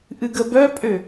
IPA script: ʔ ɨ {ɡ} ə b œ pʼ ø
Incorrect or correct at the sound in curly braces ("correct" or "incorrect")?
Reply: correct